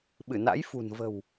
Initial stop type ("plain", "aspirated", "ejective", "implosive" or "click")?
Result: implosive